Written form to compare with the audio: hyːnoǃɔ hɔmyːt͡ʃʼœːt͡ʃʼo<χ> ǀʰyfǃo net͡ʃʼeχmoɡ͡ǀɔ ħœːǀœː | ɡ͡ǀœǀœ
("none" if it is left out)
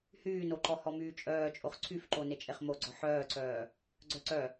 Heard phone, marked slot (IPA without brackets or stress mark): χ